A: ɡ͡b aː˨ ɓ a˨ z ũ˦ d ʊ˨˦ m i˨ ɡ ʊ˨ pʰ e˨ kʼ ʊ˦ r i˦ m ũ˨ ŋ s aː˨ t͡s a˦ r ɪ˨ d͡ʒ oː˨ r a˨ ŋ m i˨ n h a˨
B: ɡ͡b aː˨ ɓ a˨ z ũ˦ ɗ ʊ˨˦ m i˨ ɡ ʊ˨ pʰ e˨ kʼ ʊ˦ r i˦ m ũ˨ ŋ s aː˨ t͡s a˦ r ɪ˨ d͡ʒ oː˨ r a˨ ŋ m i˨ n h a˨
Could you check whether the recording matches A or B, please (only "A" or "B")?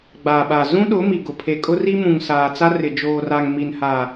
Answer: B